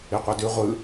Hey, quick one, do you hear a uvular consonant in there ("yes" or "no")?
yes